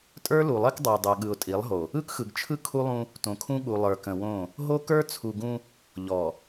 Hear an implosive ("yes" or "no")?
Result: yes